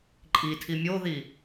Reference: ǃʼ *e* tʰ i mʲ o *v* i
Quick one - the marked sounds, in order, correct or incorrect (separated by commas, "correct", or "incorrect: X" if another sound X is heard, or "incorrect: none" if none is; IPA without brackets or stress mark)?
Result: incorrect: i, incorrect: ð